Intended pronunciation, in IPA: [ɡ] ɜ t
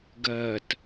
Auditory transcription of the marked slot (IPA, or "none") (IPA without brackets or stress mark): ɡ